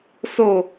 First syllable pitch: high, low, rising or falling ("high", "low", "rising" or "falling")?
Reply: falling